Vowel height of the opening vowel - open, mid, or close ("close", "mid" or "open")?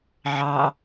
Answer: open